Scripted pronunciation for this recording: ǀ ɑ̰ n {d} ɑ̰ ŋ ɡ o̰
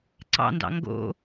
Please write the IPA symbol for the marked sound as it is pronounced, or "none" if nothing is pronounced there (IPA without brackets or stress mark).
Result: d